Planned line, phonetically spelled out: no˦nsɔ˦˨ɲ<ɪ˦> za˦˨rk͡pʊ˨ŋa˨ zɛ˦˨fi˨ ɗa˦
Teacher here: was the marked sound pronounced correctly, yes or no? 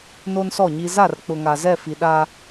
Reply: no